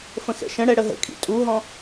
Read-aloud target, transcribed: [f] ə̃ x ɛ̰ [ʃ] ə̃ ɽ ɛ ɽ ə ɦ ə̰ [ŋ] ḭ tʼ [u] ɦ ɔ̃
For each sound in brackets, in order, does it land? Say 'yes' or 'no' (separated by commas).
yes, yes, no, yes